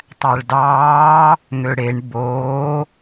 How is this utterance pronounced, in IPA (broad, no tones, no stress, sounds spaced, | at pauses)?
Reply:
tˤ æ ɭ d ɑː | ŋ ø ɽ e ɳ b oː